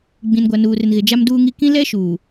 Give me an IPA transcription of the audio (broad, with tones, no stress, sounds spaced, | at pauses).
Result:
ɡ͡b ĩ˨ n ɡʷ a˨ n uː˨ r ɪ˨ n ɣ ɪ˨ d͡ʒ a˦ m d uː˦ ŋ i˦ k ĩ˦ l ɛ˦ ʃ uː˨